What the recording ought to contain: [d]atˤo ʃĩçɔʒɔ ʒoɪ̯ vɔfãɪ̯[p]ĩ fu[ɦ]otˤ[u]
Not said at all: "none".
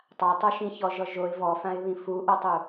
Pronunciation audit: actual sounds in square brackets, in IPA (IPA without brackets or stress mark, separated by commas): tˤ, β, ʔ, u